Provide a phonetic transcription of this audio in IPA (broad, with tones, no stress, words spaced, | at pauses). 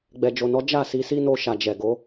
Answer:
ɡ͡bɛ˨d͡ʒo˨nɔ˨˦ d͡ʒa˦˨ si˧si˦no˧ ʃa˨d͡ʒɛ˨ɡo˨˦